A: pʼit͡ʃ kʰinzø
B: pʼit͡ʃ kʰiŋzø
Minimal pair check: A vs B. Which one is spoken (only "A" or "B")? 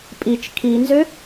A